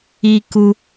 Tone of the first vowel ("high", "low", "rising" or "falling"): high